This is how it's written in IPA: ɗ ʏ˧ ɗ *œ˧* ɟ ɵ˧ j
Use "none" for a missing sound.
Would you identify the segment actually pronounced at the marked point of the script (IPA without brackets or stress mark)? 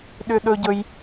ɵ˧